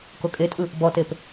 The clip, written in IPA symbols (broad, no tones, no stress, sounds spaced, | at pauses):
k o kʼ e tʼ ɯ | b ɔ t e p